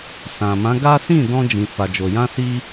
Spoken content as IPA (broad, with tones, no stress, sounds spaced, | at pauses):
s ã˨ m ã˨˦ ɡ a˦ s ĩ˦˨ d ɔ̃˧ d͡ʒ ĩ˨ f a˨ d͡ʒ o˨ j ã˧ s i˦